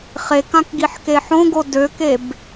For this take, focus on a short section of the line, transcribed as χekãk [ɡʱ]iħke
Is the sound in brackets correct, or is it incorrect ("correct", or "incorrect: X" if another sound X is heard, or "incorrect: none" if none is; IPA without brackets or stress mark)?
incorrect: ɡ